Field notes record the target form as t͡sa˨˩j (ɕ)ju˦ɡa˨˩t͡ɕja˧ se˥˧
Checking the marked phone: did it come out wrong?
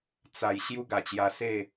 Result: no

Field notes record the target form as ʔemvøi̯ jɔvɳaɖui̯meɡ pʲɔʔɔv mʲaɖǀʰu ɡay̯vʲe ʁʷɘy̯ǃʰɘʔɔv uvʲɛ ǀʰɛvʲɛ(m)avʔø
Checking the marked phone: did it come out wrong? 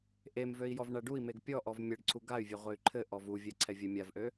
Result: yes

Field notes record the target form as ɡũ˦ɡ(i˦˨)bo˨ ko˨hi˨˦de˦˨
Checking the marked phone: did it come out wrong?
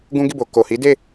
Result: no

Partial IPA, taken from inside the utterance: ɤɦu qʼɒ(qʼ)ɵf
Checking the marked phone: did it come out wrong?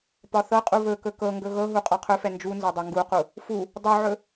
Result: yes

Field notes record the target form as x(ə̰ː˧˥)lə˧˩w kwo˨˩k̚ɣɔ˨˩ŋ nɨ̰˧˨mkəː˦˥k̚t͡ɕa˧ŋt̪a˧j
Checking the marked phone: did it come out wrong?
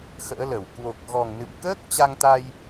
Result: no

